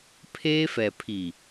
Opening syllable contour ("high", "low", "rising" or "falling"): high